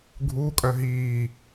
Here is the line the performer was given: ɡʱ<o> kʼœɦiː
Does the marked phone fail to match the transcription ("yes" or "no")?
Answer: yes